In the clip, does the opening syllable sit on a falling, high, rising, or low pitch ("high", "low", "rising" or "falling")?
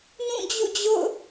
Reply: falling